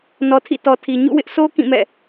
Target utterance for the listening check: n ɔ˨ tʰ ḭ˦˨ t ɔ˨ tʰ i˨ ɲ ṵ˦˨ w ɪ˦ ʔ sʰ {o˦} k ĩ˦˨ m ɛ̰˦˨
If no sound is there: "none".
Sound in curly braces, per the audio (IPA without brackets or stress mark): o˦